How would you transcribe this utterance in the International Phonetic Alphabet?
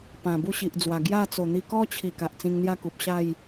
p ã˨˩ b u˥˧ ɕ i˨ ʔ d͡z w a˨˩ ɡ j a˥˧ t͡s o˨˩ n̪ i˧ k ɔ˦ t͡ɕʰ i˨˩ k a˨ ʔ t͡s ĩ˧ ŋ n̪ j a˥˧ k u˨ p̚ ɕ a˥˧ j

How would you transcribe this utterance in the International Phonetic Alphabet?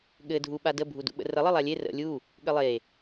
ɠ ɘ dʱ u ɓ a d ə bʱ u d ṵ ɓ ə̰ r ə lˠ ɘ lˠ a lʲ e r ə̰ lʲ u | ɠ ɘ lˠ e

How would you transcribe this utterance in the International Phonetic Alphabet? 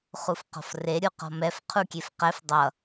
χ u f q ɔ̤ f r e ɾʲ u q ɔ̤ m ɛ f qʰ u kʲ e f q ɛ f dˤ ʌ

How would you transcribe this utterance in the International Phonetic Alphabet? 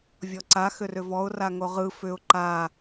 vʲ ɔ ǀ a x ʏ r ʏ v ɔ ʊ̯ r a ŋ o ʁ ɯ f ʏ ʊ̯ ǃ a

